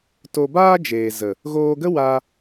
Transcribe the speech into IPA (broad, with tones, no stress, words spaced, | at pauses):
to˧baː˦d͡ʒeː˨ zə˨ | ɣoː˧ɡə˦ wa˧